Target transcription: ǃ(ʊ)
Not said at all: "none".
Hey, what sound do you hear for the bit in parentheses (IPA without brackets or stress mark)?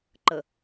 ə